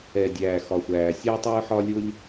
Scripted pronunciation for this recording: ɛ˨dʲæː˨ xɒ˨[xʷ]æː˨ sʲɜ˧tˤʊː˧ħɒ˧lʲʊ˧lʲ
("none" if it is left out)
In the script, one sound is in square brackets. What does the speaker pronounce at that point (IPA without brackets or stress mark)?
xʷ